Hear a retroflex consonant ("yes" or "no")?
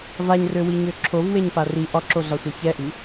no